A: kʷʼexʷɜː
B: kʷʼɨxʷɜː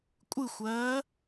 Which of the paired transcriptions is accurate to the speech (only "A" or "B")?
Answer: B